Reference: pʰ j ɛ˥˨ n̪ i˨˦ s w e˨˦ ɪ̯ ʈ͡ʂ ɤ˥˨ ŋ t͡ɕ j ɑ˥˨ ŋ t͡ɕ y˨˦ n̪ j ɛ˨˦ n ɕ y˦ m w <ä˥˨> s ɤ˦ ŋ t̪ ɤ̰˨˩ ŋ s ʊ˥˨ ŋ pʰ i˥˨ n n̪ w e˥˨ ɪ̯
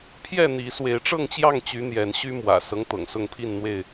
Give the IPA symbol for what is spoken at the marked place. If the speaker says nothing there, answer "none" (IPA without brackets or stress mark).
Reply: ä̰˨˩